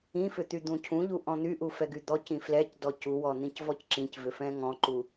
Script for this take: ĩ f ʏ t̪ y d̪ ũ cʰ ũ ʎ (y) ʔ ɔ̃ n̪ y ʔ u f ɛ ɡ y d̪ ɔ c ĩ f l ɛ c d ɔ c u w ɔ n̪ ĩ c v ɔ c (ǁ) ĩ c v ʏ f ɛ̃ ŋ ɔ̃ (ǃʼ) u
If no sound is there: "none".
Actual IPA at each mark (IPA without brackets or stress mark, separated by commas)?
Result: u, ǁ, ǃ